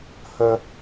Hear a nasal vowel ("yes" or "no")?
no